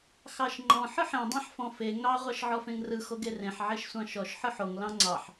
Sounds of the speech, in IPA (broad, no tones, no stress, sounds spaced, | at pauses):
x ɑ ʃ ŋ͡ǃ ɔ̃ ħ ɯ ħ ẽ dˤ ẽ ħ f ɔ̃ f e ŋ ɑ ʁʷ ɑ ʃ ʕ ɔ f ẽ ŋ r ɯ x o ɡ e r ẽ ħ ʕ e ʃ sʷ ɑ̃ ʃ ɔ ʃ ħ ɯ ħ o ŋ l ɑ̃ ŋ͡ǀ ɑ ħ